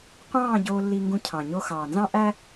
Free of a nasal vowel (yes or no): no